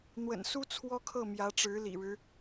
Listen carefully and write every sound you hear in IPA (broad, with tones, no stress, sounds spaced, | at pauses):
n̪ w ə̰˨˩ n s u˥ t͡sʰ w ɔ˥ kʰ ɤ˥˩ m j ä˧˥ ʈ͡ʂ ɻ̩˧˥ l ḭ˨˩ ɻ ɻ̩˦